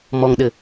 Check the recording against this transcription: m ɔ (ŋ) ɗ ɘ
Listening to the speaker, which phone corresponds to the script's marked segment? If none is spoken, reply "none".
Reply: ŋ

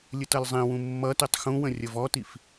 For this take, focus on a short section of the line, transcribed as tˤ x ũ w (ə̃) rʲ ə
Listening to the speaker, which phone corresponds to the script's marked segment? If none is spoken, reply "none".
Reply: ə̃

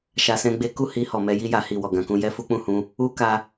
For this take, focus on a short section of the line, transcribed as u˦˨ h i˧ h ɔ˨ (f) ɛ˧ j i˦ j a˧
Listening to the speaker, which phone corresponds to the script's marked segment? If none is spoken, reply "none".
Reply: m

